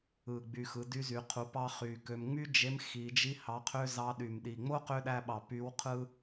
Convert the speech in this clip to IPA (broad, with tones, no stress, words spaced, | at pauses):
ɯ˨˩ ɡ͡by˨˩xɯ˩˧ dy˧˥zy˩˧ qʰu˩˧pɑ˧ χy˨˩kø˧m ŋ͡my˥ d͡ʒe˧˥mxi˩˧ d͡ʒi˥hɑ˧˥qʰø˥ zɑ˧˥ɗy˨˩mɗi˨˩ ŋ͡mo˥qø˧˥ɗæ˧ɓɑ˨˩ py˧˥wqʰɯ˥